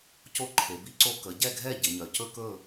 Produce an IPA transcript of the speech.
c o˥ ǃʰ e˩˧ b i˥ ǀ o˥ k ə˩˧ ɟ ɛ˥˩ ɡʱ ɛ˥˩ ɟ ɪ˩˧ ɲ œ˩˧ c ɵ˥ k ɵ˥˩

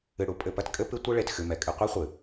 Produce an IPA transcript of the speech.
ɨ˨ ɽ u˨˦ pʼ ɘ˨ p ɐ˦ t kʼ ɘ˦ p ɨ˦ tʷ ɨ˦ ɭ e˨ t x ɨ˨ m ɛ˨ kʼ ɨ˧ qʷ i˦ χʷ ɨ˨

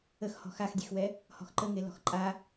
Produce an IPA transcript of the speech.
ə x h ɔ̤ x a x dʲ e x w ɛ | h ɔ̤ x ǃ ə ŋ e l ɔ̤ x ǃʼ a

